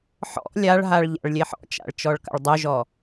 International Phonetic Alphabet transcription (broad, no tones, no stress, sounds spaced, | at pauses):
ħ ɔ̰ lʲ a ɭ ɦ a ɭ ʎ a̰ ɭ lʲ e ħ ɔ̰ t͡ʃ a̰ ɭ t͡ʃ ɔ ɭ k a̰ ɭ dˤ œ ʒ ɔ